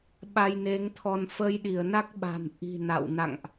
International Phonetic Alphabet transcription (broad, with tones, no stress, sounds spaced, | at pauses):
ɓ a˧ j n e˨˦ ŋ t̪ʰ ɔ˧ n f ə˧ j ɗ i˧˩ ə̯ n a˦˥ k̚ ɓ a̤˨˩ n ʔ i̤˨˩ n a̰˧˨ w n a̰˧˨ ŋ ʔ